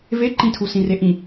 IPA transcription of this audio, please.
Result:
v e ǃ ĩ tʰ u s ĩ r e ʔ ĩ

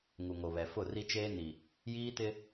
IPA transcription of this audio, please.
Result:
ŋ u˨ ŋ o˨ β ɛ˨ f ʊ˦˨ r i˦ t͡ʃ eː˦ n i˨ | j iː˦ t ɪ˦

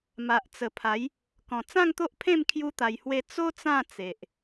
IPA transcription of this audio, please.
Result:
m a˨ ʔ t͡s ə˨˩ pʰ a˨˦ j | k ɔ̃˨˩ t͡s ã˥˧ ŋ t̪ o˦ ʔ pʰ ẽ˥˧ m kʰ j u˦ t̪ a˧ j h w e˥˧ t͡s o˦ t͡s ã˥˧ t͡s e˨ ʔ

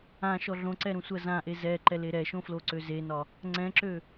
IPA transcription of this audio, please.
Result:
ã ʃ ɔ ɮ õ ǀ ɛ ɾ ũ sʷ ɜ z ã ʔ e z ɛ ǃ ɛ l e ɾ ɛ ʃ õ f l o ǀ ø z e n ɒ | ŋ͡ǀ ɛ̃ ǁ ø

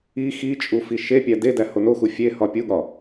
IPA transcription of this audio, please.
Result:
i x i t͡ʃʼ u f i ʃ e pʲ æ d e d æ h o n o x u fʲ e h ɒ pʲ u ɠ ɒ

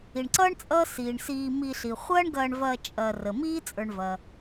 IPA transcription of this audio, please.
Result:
i˩ ɳ ǀ ʌː˥ ɳ t͡sʼ ʌː˦ s iː˩ ɳ s iː˨ m i˨ ɬ i˩ χʷ ɐː˦ ɳ ɡ ɐː˨ ɳ v ɐː˨ t͡ʃʼ ɐː˨ r ə˩ m iː˥ t͡sʼ ə˞˨ ɳ v ɐ˩

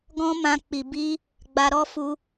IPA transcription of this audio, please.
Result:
ɡ ɔ̃˦ m ã˧ k͡p i˨ b i˧ | ɡ͡b a˧ ɾ ɔ˦ f u˧

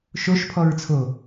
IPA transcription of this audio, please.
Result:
ʃ o ʃ pʰ ɔ ɹ t͡sʰ o

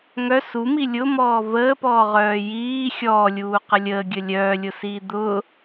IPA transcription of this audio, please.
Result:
ŋ œ s u m i lʲ ʊ m ɔː v əː p ɔː ʁ œː j iː xʲ ɔː lʲ uː q ə lʲ əː ɡʲ ə lʲ œː lʲ ʊ s iː d̪ ʊː

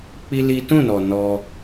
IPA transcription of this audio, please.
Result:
k͡p i˦ l i˦ t ũ˦˨ n ɔ˨ n ɔ˧

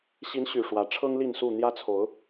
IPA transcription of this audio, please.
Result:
ɕ i˨˦ n ɕ y˨˩ ʂ w ä˨˦ ʈ͡ʂʰ ɤ˦ ŋ l i˥˨ n s u˥˨ n̪ j ä˦ t͡sʰ o˨˦ ʊ̯

